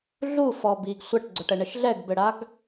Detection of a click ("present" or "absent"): present